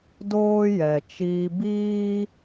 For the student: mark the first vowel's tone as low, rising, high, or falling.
high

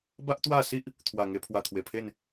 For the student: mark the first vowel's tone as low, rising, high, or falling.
high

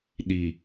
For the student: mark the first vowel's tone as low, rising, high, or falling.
low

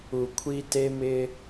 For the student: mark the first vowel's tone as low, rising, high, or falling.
low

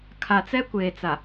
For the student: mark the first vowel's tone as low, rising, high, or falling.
low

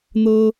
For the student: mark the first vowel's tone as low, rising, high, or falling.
high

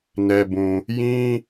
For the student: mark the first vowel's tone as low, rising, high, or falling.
low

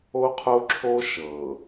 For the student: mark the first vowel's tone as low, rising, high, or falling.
high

